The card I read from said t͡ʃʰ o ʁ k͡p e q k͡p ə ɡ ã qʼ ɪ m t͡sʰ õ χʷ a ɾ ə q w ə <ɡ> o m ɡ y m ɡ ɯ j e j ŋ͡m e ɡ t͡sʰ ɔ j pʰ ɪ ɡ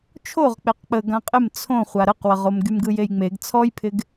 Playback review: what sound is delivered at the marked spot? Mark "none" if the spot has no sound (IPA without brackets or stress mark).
ʁ